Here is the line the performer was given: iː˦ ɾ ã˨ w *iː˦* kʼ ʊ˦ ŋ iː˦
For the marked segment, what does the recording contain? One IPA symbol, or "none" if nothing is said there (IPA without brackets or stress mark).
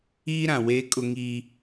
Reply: eː˦